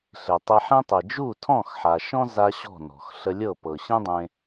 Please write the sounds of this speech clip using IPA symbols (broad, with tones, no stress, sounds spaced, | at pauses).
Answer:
ɬ e˨ tˤ i˧ ħ ĩ˦ tˤ e˨ d͡ʒ u˦˨ tʰ ɔ̃˦˨ x ħ a˨ ʃ ɔ̃˦ z a˧ ɕ ɔ̤˦˨ n ɔ̤˨ x ɬ ə˧ lʲ ɤ˦˨ p ɤ˨ ɕ ĩ˦ dˤ ẽ˧